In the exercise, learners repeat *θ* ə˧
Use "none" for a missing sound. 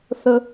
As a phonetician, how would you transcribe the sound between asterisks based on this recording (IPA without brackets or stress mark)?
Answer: θ